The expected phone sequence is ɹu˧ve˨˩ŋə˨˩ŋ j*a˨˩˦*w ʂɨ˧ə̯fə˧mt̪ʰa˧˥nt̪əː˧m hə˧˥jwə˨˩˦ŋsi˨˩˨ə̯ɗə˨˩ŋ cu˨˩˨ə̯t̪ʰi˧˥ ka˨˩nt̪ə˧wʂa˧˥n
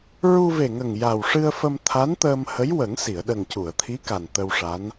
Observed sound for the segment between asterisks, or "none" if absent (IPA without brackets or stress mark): a˨˩